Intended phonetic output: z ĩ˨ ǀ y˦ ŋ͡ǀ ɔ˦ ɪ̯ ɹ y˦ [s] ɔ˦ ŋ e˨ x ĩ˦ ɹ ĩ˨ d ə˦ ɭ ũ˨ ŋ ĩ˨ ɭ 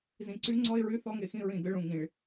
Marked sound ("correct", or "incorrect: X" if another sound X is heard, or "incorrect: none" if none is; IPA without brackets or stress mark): incorrect: θ